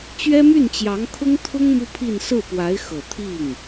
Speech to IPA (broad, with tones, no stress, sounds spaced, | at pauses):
t͡ɕ ɥ ɛ˥ m y˥˩ n t͡ɕ j ɑ˧˥ ŋ kʰ ʊ˥ ŋ t̪ʰ ʊ˥ ŋ m u˥ pʰ i˥˧ n s ɹ̩˥˩ p w a˧˥ ɪ̯ x ɤ˨˩ t̪ʰ i˥˩ ŋ